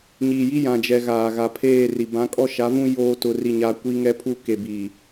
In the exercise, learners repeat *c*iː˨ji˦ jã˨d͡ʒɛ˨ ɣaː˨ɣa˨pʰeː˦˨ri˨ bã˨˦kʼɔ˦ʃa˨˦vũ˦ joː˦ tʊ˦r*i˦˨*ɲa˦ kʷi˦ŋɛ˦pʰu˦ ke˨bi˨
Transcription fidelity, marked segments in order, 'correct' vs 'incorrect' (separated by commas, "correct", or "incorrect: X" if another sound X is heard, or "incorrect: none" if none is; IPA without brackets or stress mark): incorrect: ɲ, correct